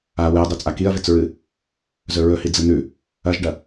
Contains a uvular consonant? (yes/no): no